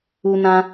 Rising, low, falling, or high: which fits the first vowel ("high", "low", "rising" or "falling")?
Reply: high